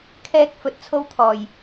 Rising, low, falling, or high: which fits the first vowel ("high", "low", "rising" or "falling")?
high